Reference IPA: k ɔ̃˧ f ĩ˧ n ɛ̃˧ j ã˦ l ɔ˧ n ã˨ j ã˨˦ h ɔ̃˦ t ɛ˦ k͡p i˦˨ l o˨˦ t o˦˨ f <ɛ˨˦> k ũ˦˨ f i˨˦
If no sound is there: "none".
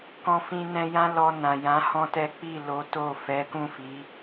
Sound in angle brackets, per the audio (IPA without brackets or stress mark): ɛ˨˦